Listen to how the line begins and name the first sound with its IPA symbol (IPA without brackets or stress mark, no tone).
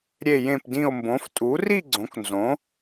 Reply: ɾʲ